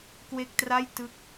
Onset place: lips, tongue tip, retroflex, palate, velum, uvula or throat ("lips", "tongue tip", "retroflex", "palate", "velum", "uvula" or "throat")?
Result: velum